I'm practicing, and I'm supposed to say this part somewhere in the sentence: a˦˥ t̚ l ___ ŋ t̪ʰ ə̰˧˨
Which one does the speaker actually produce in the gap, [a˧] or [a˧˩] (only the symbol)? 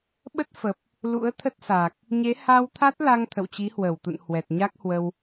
a˧